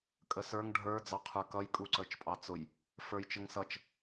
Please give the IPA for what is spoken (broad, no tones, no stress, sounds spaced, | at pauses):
kʼ ə s ə˞ ŋ ɖʱ ə˞ d͡z ɑ qʰ ə˞ k ʌ j kʼ u ǀ ə˞ t͡ʃ pʼ ɑ t͡s ʊ j | f ə˞ j t͡ʃ ə ŋ s ʌ t͡ʃ